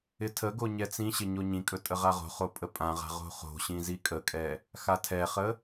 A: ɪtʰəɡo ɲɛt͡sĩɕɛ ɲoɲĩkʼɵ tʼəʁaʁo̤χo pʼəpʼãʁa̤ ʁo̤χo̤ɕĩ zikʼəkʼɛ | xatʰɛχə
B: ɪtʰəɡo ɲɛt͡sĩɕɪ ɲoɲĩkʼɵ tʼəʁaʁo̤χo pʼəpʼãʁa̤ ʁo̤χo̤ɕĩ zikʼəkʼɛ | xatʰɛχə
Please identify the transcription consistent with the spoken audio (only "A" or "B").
B